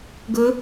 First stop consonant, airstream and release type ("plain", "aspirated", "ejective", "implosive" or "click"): plain